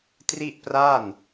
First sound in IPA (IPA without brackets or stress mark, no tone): t